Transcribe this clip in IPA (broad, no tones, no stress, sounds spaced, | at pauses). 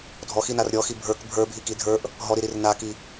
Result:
dʱ ɔ x i n a r ɾʲ ɔ x i bʱ ə˞ k bʱ ə˞ bʱ i k i dʱ ə˞ ʔ | ɦ ɔ ɾ i ɾ i r n a k i